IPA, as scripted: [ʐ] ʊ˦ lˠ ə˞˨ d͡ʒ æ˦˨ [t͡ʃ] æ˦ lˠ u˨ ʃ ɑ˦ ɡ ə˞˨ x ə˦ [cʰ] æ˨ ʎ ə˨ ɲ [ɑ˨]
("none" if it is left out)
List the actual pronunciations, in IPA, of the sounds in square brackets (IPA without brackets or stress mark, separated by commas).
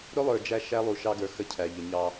ɾ, ʃ, cʰ, ɑ˦